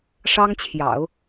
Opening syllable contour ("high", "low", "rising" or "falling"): high